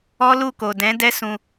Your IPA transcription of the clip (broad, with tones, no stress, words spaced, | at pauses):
ɔ˦lu˦˨ko˨ dɛ̃˨˦ dɛ˦sũ˧